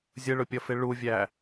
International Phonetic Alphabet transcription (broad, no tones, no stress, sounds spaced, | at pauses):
zʲ ə ɭ ʊ pʲ ʌ f ɪ ɭ u vʲ æ